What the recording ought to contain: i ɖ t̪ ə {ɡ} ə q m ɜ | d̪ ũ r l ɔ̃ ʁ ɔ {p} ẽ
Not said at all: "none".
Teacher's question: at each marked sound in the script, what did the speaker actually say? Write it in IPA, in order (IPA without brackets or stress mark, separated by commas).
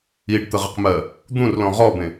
ʁ, b